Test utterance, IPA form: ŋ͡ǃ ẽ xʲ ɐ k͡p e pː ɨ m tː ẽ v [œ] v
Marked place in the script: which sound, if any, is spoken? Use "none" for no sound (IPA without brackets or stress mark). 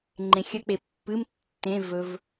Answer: ɵ